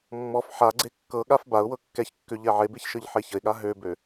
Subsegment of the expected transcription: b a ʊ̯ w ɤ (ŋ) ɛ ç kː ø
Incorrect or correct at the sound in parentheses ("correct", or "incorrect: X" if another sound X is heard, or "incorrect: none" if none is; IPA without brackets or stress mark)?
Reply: incorrect: kː